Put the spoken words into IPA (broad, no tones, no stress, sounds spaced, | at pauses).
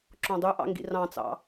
ǁ õ dˤ y ʔ ɑ̰ ŋ ɡ ḭ r ɑ̃ t͡s ɑ̰